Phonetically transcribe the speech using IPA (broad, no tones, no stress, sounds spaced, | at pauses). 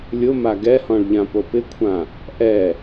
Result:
lʲ ʊ m a ɡ ɛ h ɔ̃ ɭ ʎ ã p o p ɪ kʷʰ ã | ʔ ɛ